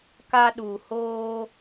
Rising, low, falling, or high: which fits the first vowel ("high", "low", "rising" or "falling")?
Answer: high